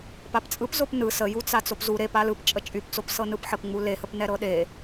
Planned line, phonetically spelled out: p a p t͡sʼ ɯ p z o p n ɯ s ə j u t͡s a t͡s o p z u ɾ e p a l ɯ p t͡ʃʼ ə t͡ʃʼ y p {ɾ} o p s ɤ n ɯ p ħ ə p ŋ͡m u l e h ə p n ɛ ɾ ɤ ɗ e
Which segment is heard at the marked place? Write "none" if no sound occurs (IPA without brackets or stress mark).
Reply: t͡s